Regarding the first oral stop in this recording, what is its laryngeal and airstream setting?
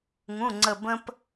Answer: click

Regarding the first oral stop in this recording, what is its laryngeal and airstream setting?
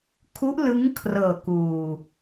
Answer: aspirated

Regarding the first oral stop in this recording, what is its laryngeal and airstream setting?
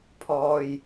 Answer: aspirated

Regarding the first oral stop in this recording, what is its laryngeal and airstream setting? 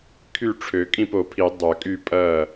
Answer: aspirated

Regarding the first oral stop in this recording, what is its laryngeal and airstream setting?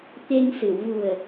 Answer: plain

